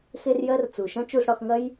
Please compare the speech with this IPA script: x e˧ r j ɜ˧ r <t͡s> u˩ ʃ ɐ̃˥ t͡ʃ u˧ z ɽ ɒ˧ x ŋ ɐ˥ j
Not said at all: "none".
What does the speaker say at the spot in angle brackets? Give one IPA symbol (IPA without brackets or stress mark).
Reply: t͡s